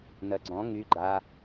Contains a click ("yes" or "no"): yes